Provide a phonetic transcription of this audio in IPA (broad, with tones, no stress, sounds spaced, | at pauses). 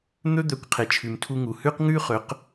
n̪ ɵ˥ d̪ œ˩˥ kʷ qʰ e˩ t͡ʃʰ ʉ˩ m tʰ u˧ ŋ u˩ h ʉ˥ q ŋ ʉ˥ χ ɵ˩˥ q